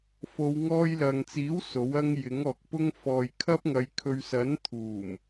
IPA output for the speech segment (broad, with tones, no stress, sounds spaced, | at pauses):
f o˨˧ w ŋ ɔː˧ j l ɐ˨ ŋ t͡s iː˨˥ w s o˨˥ w ɐ˥ ŋ j ɪ˨˥ ŋ ɔː˨ k̚ p ʊ˥ ŋ f ɔː˨ j kʰ ɐ˥ p̚ ŋ ɐ˨˧ j kʰ ɵ˨ ɥ s ɐ˨˥ n t̪ʰ uː˨˩ m